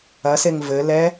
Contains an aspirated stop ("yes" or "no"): no